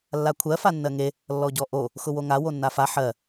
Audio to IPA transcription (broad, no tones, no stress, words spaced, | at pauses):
lːakʷʰɜ fanːɜŋe | lːɔɟɔʔo | xʊwoŋa wonːafa ħɜ